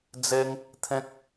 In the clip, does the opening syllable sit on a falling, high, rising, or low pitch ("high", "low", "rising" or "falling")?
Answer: high